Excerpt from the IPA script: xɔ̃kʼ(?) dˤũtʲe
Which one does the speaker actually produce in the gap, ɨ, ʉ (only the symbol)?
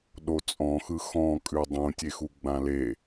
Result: ʉ